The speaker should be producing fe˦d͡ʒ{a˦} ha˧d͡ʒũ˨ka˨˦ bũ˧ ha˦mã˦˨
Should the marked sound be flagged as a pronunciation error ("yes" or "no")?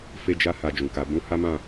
no